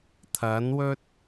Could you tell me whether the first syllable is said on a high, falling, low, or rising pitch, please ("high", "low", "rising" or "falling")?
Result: rising